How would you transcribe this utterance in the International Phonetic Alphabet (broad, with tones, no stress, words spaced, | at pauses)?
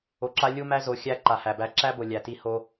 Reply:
o˨ǁa˦ lʲu˦mæ˦zo˨˦ xʲæ˦ ǃa˨hæ˨bæ˦ ǁæ˦bo˨ lʲæ˨ti˦ ho˦